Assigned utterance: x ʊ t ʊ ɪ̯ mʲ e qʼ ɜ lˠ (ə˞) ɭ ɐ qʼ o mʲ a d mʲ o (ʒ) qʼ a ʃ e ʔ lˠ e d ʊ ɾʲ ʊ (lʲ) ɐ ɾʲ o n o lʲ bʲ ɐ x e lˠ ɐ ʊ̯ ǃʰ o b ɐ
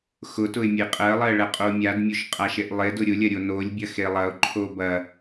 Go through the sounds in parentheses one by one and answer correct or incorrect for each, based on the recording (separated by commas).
incorrect, incorrect, correct